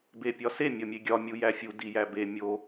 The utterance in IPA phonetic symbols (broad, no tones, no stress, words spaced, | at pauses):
bepʲɒse mʲɒmʲeɡʲɒ mʲujæfʲu dijæbe mʲo